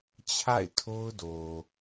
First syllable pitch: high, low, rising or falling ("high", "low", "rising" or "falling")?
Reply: falling